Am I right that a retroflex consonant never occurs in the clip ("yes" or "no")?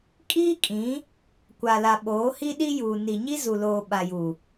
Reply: yes